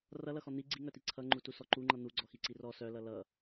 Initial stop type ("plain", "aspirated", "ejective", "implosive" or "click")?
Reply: click